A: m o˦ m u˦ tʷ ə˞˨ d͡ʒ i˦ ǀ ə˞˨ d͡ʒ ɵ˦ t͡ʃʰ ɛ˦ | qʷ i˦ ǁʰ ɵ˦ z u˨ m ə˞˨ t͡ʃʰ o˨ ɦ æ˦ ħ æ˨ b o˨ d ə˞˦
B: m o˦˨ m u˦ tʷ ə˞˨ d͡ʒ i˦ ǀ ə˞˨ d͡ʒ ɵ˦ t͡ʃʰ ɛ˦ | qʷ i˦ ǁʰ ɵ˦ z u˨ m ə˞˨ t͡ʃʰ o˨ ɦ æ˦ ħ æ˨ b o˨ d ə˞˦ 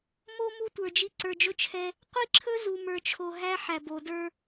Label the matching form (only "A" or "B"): A